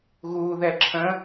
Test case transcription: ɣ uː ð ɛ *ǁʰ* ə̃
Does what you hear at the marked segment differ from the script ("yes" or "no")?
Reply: no